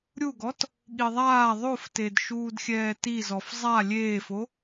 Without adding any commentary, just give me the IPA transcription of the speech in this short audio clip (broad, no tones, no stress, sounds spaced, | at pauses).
ɾʲ u ɡ ɔ t | ɠ i ðˤ aː ðˤ o f t e d ʃ uː d xʲ ɛː t i z ɔ f zˤ a lʲ eː f o